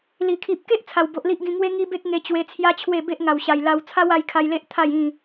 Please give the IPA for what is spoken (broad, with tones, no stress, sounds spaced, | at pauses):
l i˨˩ kʰ i˨ p̚ k e˦ ʔ t͡sʰ a˨˩ w b o˨ ʔ l i˦ ʔ ɡ ĩ˧ ŋ w e˦ ŋ i˦ b e˦ k̚ ŋ e˧ t͡ɕ w e˧ t͡sʰ j a˦ t͡ɕʰ w e˥˧ b e˦ ʔ ŋ a˨˩ w ɕ a˨˩ j l a˧ w t͡sʰ a˦ w a˧ j kʰ a˧ j l e˦ ʔ t̪ʰ a˥˧ j ĩ˥˧